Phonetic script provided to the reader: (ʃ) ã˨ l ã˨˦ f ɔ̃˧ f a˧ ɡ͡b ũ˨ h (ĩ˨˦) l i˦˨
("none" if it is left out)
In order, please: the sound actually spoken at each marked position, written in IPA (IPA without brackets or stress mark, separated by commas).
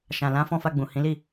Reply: ʃ, ĩ˨˦